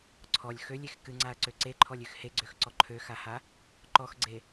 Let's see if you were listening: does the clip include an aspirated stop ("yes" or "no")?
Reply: yes